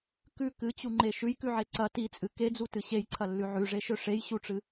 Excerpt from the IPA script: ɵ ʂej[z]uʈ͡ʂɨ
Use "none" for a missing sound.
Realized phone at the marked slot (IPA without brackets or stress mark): ɕ